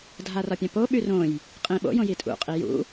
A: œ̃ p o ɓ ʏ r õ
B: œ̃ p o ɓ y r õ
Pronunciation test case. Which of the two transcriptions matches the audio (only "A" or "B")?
B